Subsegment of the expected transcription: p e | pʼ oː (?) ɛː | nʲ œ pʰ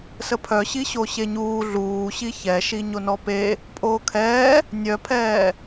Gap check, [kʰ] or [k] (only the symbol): kʰ